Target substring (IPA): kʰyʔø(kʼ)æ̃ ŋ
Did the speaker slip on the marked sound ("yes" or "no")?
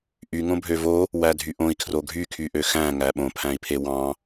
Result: yes